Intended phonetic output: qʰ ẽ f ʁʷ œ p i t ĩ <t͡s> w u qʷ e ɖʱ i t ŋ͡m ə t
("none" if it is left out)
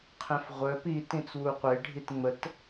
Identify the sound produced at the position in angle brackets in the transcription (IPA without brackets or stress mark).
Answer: t͡s